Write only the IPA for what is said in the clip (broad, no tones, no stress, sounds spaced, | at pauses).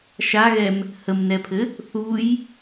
ʃ a ɣ ɛ m | h ə m n ɛ pʰ ɘ | θ u j